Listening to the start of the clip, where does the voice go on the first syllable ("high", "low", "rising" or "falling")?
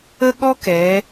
high